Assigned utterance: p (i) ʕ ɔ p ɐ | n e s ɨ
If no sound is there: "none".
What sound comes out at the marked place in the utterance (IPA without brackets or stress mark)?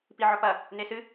i